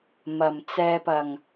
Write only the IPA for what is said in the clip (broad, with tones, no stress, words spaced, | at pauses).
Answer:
mɐ˨˩m t͡sɛː˧pɐ˨˩ŋ